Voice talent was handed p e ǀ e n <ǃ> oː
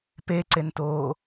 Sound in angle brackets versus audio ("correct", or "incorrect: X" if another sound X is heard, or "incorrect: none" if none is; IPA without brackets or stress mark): incorrect: t